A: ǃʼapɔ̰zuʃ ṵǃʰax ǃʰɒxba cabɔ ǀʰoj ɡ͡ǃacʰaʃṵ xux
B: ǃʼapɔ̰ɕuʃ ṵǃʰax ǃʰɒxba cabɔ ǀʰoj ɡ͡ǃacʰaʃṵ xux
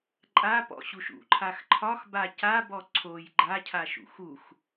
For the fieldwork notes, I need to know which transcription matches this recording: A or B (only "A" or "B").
B